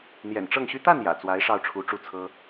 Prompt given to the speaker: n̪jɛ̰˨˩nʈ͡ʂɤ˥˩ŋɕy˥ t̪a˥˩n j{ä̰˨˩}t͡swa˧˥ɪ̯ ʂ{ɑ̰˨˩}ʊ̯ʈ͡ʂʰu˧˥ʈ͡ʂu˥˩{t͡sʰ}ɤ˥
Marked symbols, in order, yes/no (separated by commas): yes, no, yes